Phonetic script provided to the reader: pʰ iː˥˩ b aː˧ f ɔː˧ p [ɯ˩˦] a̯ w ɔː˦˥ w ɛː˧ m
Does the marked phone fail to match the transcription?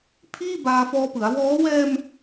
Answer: no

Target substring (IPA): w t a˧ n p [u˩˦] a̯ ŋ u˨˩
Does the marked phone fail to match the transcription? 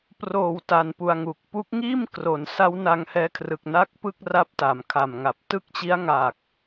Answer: yes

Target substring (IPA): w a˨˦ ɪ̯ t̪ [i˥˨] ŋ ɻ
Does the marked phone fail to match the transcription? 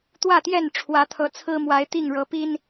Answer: no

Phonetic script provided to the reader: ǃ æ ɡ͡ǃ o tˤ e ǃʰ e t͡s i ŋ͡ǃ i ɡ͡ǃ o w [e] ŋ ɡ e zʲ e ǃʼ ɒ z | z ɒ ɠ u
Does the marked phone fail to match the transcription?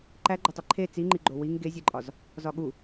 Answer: yes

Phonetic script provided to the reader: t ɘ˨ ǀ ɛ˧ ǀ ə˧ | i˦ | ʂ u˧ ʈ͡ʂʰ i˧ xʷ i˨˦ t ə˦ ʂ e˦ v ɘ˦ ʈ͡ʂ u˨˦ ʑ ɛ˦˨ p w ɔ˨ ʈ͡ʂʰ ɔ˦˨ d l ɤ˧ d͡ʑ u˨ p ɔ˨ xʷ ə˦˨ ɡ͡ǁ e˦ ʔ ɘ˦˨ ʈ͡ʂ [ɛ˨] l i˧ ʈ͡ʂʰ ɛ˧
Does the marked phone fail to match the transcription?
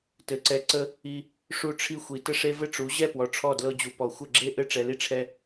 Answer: no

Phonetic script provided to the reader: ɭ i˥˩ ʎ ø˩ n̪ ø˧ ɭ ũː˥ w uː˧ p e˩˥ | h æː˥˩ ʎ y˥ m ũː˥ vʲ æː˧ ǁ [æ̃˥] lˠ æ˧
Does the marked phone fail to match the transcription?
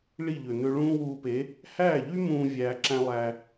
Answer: no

